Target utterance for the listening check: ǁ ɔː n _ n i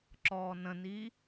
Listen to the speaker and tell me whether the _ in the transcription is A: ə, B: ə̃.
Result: B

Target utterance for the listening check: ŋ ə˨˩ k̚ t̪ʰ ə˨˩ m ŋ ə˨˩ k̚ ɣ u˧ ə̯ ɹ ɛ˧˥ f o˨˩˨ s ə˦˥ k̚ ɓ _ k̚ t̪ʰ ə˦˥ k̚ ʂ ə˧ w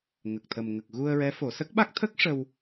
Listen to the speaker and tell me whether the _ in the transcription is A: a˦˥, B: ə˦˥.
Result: A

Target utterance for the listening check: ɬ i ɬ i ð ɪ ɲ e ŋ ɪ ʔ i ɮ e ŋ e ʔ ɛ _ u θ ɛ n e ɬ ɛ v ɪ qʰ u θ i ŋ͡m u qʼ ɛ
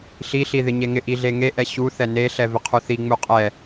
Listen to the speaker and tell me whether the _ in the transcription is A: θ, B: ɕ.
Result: B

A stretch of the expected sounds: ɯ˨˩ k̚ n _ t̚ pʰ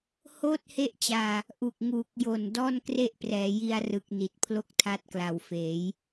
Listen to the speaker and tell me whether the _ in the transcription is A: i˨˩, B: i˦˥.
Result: A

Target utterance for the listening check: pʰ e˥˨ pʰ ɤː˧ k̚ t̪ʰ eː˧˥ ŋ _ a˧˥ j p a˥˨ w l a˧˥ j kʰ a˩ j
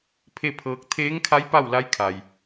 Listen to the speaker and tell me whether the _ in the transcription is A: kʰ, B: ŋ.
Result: A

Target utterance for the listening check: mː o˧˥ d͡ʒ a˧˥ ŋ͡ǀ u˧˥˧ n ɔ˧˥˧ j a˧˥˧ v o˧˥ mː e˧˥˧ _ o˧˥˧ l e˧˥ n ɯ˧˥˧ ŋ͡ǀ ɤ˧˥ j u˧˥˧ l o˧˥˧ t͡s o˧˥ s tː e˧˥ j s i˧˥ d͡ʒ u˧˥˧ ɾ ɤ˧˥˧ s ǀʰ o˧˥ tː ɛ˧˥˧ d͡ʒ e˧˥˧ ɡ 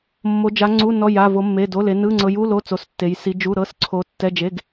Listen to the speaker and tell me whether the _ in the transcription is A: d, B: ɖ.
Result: A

